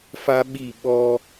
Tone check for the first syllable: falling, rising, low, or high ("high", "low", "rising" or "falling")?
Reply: high